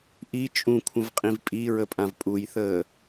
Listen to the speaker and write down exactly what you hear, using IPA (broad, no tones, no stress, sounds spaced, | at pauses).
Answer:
ʔ i t͡ʃʼ ũ kʷʰ ə̃ v qʼ ĩ v pʼ i ɹ ə pʼ ã v pʼ u j θ əː